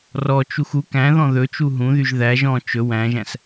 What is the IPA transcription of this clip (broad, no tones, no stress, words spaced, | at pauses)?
rɔt͡ʃux u kæ̃ðɔ̃ ðɵt͡ʃu ɦũðyʒ ðæʒ ɔ̃ t͡ʃɵ wæ̃ʒæ̃s